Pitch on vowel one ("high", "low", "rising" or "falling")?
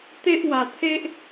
high